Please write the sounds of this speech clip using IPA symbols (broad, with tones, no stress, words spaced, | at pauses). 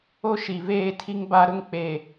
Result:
o˦ʃi˨veː˦˨tʰi˦ŋ ba˦ ɾʊ˦ŋk͡pe˨